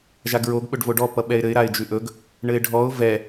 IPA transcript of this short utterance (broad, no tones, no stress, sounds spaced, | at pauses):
ʒ a ɡ ɹ o ɡ ɓ ɵ ɖ v o ɖ ɔ p ʌ ɓ ɛ ɪ̯ ɾ ɘ ɪ̯ ɾ a ɪ̯ d͡ʒ ʉ ʔ ɵ ɡ | ɳ ɘ ɪ̯ ɖʱ ɔ ʊ̯ v ɛ